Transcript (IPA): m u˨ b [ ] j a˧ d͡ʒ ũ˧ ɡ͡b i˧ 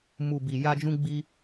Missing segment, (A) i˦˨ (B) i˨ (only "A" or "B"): B